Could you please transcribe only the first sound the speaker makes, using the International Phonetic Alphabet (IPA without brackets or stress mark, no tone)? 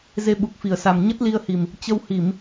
z